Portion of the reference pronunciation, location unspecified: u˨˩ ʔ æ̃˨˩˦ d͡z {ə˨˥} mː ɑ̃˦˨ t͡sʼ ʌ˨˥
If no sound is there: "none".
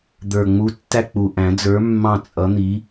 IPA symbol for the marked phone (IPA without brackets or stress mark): ə˞˨˥